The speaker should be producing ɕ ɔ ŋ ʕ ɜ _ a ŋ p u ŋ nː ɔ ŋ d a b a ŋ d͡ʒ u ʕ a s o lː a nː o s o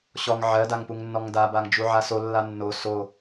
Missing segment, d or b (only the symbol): d